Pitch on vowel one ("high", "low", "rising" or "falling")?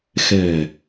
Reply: low